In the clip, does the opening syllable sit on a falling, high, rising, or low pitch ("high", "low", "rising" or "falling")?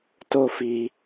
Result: high